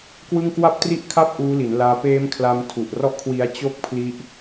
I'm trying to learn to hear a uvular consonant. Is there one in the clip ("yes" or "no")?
no